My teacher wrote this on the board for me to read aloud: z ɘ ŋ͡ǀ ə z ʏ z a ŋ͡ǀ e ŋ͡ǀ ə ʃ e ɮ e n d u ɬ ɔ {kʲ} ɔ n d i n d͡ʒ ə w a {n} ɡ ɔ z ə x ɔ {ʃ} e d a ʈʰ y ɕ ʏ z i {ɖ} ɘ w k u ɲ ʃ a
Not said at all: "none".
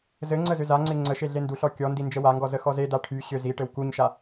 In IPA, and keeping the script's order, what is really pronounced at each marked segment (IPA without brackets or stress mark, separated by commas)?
kʲ, ŋ, z, ʈ